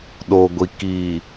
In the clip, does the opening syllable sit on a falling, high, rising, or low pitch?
low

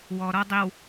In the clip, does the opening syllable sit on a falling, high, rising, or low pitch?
low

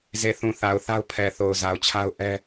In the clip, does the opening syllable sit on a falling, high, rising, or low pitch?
low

